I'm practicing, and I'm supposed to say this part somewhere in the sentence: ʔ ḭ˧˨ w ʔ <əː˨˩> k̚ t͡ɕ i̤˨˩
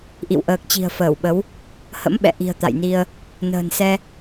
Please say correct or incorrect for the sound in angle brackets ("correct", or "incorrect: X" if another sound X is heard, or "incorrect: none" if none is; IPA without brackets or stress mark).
correct